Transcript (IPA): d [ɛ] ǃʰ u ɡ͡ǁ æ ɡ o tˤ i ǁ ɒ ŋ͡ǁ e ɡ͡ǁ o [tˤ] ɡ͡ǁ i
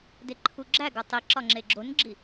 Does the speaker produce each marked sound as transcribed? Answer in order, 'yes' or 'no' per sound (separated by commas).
no, no